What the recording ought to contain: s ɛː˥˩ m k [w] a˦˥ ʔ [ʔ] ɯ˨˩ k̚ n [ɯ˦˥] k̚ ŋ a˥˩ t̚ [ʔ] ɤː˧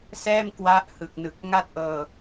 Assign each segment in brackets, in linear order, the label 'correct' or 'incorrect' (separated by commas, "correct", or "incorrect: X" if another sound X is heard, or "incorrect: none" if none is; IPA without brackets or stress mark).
correct, incorrect: h, incorrect: ɯ˨˩, correct